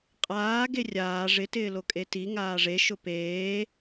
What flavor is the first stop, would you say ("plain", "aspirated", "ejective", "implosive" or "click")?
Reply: ejective